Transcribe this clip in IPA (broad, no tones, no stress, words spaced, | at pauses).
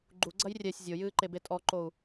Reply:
ɡ͡ǃuɡ͡ǀɐj rʲɛsʲ zʲojɨːǃebe tʼɔǃou̯